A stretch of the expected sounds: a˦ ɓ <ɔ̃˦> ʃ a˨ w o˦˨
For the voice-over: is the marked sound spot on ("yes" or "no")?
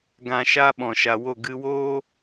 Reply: no